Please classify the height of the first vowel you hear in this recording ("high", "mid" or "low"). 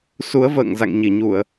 high